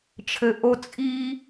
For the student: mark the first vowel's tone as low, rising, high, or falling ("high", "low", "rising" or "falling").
low